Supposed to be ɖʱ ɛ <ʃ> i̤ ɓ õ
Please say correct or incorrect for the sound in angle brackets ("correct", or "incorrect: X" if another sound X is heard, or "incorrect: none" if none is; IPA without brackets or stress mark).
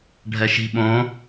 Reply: correct